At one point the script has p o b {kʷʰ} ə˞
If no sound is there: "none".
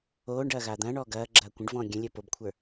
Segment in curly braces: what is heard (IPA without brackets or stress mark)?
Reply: kʷʰ